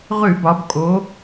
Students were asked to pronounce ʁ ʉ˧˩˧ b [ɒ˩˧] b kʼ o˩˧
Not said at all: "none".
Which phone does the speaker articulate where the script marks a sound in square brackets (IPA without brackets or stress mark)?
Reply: ɒ˩˧